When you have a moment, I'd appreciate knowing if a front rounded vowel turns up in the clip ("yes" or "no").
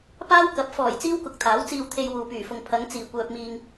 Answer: yes